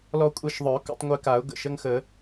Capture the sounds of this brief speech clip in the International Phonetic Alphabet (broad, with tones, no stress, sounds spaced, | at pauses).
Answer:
l ɔ˧ kʷʼ ɛ˧ ʃ ðˤ œ˨˩˦ k ṵ˧˥˧ tˤ ŋʷ e˧ k a˨˩˦ ʊ̯ ɡ ə̰˧˩ ʃ ə˧˥˧ ŋ x ə˨˩˦